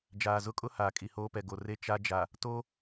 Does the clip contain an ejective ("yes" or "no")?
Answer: yes